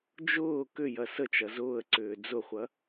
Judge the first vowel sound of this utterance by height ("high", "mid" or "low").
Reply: high